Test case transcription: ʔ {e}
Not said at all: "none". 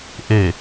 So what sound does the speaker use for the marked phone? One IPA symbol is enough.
e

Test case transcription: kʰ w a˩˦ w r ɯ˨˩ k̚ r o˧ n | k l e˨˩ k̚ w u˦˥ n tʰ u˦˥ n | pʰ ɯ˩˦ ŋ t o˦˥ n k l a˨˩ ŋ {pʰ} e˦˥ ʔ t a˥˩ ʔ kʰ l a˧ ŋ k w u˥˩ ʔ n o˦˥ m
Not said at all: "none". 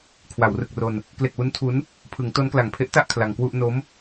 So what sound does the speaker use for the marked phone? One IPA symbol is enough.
pʰ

